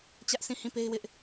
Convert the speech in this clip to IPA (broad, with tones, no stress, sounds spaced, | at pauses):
t͡ɕ ä˦ ʔ sʰ ĩ˦˨ h ĩ˦˨ p e˦ ɪ̯ w ɪ˦ ʔ